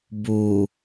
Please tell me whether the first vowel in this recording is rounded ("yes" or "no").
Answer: yes